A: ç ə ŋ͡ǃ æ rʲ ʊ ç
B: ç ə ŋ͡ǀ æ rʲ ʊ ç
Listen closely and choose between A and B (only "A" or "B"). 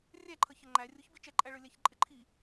A